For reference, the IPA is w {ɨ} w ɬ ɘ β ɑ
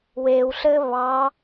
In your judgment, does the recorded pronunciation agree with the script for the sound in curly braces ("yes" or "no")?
no